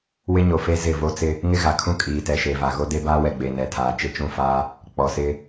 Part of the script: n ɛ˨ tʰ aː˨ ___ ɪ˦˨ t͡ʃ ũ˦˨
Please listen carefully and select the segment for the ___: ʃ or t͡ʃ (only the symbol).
t͡ʃ